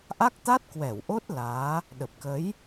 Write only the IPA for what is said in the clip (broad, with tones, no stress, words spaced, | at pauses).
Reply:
ʔa˦˥k̚t̪a˦˥t̚kwɛ˧˩w ʔo˦˥t̚ laː˨˦ | ɗə˨˩p̚kə˨˦j